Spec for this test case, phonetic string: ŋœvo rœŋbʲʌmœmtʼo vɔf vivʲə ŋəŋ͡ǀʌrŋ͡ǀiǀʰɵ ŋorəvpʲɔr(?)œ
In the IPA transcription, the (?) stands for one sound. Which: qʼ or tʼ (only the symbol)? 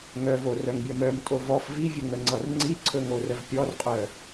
qʼ